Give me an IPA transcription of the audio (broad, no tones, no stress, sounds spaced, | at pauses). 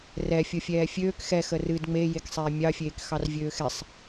r ɛ fʲ o fʲ ɛː fʲ øː k x ɛ x ə r ɨ d ŋ͡m e j e k sˤ ɛː mʲ ɑ fʲ eː k x ɑ r vʲ øː x ɛ sˤ